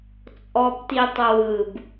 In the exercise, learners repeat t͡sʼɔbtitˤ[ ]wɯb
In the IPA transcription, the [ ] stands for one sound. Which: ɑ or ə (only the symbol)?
ə